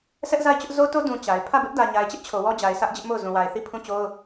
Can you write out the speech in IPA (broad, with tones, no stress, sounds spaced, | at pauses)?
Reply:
sʰ ɛ˦ ʔ z a˦˨ ɪ̯ t͡ɕ ʊ˦ ʔ z o˦ t o˦ d ũ˨ t͡ɕ a˨ ɪ̯ pʰ ä˦˨ b ɪ˦ ʔ d ä˨ ɲ a˨ ɪ̯ t͡ɕ ɪ˦ ʔ t͡ɕʰ o˨ w ɔ˦ d͡ʑ a˨ ɪ̯ s ä˦ ʔ d͡ʑ ɪ˦ ʔ m o˦˨ ʊ̯ z ũ˨ w a˨ ɪ̯ θ i˦˨ pʰ ũ˦˨ t͡ɕ o˦ ʊ̯